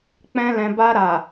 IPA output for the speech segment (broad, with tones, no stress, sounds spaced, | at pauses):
k͡p ɛ̃˦ l ɛ̃˧ b a˧ ɾ a˨